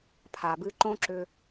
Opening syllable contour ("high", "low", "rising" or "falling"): low